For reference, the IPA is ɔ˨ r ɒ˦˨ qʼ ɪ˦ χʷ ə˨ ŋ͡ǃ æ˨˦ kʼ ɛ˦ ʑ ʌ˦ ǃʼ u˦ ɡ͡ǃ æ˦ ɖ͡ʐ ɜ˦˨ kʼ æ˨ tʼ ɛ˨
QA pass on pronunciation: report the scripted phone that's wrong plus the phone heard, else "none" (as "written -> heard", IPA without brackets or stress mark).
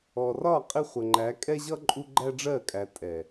none